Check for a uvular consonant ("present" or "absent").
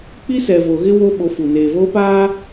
absent